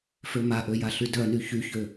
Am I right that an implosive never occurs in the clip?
yes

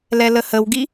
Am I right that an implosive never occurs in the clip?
yes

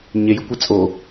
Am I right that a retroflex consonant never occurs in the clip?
yes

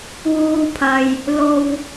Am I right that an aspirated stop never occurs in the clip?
no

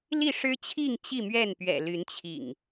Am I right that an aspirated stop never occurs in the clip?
no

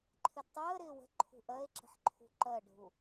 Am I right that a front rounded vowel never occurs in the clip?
yes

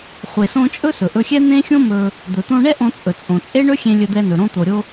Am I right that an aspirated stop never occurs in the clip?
yes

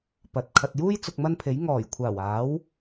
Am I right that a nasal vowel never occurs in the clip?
yes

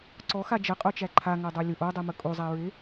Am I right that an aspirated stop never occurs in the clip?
no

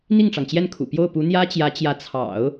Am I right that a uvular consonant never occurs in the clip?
yes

